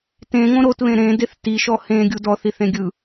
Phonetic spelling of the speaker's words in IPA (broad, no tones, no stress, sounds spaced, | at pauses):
t ẽ ŋ õ ɾ o t β ẽ ɾ ẽ d e θ t i ʃ ɔ h ẽ ɡʲ u d ɔ θ i θ ẽ ɡʲ ɯ